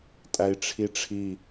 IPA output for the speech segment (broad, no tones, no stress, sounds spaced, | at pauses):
tʼ æ i̯ ʈ͡ʂʰ i ʈ͡ʂʰ i